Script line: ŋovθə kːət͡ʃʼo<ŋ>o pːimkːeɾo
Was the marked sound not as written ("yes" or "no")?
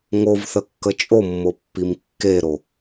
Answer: yes